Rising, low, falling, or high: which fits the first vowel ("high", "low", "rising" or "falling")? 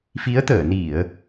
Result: rising